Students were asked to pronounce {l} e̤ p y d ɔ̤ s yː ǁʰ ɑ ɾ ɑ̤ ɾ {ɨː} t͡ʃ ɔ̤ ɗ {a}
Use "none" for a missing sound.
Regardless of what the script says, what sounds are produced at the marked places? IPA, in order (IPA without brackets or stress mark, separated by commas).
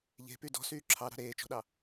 ʎ, eː, ɑ